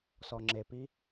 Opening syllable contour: low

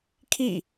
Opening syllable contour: falling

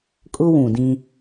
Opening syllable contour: high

